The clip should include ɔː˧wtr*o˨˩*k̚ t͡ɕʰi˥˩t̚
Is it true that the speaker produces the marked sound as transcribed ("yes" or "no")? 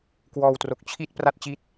yes